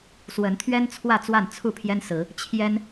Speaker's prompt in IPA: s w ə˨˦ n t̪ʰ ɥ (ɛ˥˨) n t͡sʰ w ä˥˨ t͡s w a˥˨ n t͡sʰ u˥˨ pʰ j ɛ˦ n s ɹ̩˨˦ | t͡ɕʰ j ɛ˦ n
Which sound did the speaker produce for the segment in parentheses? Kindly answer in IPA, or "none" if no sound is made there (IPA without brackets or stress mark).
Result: ɛ˦